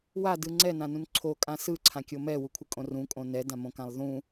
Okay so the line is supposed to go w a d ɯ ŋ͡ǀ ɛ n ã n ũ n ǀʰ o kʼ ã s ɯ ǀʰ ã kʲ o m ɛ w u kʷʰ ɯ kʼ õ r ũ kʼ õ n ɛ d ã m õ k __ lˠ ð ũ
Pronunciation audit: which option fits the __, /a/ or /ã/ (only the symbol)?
ã